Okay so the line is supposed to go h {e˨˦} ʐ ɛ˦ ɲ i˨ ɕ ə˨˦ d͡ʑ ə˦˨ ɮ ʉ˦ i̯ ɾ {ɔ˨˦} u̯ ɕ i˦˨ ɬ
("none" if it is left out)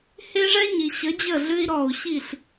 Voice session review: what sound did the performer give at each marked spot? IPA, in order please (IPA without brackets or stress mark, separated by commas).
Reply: e˦, ɔ˧